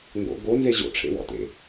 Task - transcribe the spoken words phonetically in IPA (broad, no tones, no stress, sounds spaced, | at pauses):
ŋ ɡ o̰ ɡ o n z e ʑ o̰ ʈ͡ʂʰ ḛ w ɔ̰ t ḛ